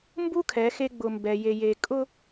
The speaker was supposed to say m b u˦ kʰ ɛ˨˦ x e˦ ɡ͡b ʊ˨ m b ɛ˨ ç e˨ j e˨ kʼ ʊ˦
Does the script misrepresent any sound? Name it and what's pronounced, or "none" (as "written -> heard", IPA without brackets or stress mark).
ç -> j